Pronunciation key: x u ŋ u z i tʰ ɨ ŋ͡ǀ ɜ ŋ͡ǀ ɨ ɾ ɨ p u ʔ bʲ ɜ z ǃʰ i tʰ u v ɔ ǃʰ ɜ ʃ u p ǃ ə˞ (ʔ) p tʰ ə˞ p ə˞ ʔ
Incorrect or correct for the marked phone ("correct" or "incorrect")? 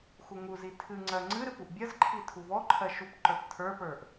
incorrect